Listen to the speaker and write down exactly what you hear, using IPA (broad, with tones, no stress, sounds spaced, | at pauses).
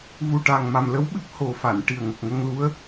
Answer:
v u˨˩ ʈ a˨˩ ŋ m a˨˩ m l ə˧˥ w ɓ ɨ˦˥ p̚ h o˨˩ f a˨˩˨ n ʈ i˨˩ ə̯ ŋ ə˨˩ k̚ ŋ ə˧ ŋ l u˧˥ ə̯